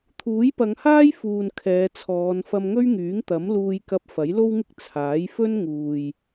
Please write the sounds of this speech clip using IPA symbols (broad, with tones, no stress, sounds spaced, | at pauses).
t̪ʰ uː˨˥ j p ɐ˨˧ ŋ h aː˥ j f uː˨ n kʰ ɛː˨˧ t͡sʰ ɔː˨˧ n f ɐ˧ m ŋ ɵ˥ ɥ ŋ yː˨˥ ŋ t̪ ɐ˨˥ m l uː˧ j k ɐ˧ p̚ f ɐ˨˥ j l o˥ w ŋ ɪ˥ k̚ t͡sʰ aː˨˥ j f ɵ˥ n ŋ uː˨ j